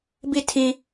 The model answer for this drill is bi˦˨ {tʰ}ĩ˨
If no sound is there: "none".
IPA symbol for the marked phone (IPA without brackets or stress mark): tʰ